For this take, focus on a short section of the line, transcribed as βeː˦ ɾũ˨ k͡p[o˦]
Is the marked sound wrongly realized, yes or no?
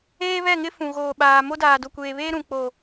yes